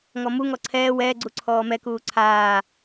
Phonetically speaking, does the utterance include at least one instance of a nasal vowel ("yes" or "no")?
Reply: no